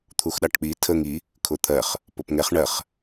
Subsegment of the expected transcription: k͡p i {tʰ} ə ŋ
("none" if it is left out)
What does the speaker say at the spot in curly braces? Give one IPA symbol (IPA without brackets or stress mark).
tʰ